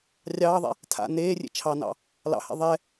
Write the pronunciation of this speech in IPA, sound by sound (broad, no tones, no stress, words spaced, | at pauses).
rʲɑːðˤɛ̰ | tʰa̰ neːrʲḛ t͡ʃʰɑnɑ̰ | lɑ̰hɛ̰ ðˤɛ